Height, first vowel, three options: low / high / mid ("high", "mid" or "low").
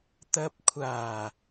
low